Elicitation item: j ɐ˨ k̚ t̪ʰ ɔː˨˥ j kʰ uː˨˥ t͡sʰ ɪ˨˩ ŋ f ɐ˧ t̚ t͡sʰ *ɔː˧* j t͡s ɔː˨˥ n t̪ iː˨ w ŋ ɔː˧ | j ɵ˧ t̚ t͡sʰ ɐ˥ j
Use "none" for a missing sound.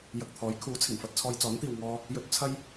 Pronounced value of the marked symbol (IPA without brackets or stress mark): ɔː˧